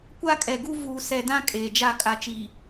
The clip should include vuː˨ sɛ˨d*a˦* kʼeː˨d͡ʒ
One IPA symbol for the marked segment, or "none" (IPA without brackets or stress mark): ã˦